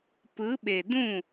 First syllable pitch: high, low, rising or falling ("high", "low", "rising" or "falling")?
rising